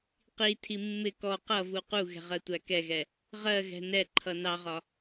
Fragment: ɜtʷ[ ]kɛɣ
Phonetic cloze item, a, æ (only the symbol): æ